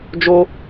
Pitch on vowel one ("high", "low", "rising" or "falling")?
high